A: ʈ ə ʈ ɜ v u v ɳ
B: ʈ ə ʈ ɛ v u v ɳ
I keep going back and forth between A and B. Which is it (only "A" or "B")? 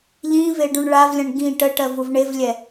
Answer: A